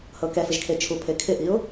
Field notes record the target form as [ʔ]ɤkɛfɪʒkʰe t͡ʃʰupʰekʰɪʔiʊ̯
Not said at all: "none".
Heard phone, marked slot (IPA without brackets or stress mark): h